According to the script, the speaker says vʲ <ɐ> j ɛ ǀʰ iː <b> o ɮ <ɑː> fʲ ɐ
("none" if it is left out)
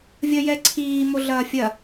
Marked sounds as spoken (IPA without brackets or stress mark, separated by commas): ɐ, m, ɐː